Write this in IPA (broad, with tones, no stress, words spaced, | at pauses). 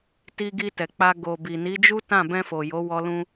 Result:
ti˧ɡi˧tɛ˨k͡pa˧ ɡo˨ bi˨ni˨˦d͡ʒu˦tã˦˨ bɛ̃˧fo˨ jo˨˦wɔ˧ lũ˧